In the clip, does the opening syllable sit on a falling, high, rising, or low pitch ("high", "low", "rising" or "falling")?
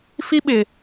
high